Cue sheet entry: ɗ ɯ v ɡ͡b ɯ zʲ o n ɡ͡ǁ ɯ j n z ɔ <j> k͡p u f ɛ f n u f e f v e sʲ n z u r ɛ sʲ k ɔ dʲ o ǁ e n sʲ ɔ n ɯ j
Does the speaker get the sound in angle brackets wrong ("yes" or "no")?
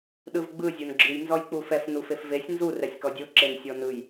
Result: no